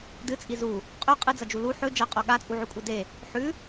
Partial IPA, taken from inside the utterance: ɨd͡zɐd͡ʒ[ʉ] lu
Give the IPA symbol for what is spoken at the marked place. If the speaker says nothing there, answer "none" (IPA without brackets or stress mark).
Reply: u